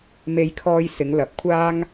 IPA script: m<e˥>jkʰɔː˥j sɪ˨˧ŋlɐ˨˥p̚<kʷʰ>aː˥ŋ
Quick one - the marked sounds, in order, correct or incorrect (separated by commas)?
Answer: correct, correct